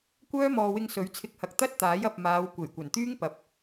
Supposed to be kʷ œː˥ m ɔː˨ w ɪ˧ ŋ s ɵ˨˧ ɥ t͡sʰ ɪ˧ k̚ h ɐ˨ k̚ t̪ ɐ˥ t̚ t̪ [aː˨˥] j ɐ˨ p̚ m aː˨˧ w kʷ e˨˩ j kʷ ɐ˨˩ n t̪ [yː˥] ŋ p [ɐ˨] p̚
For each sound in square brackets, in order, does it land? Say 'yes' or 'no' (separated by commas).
yes, yes, yes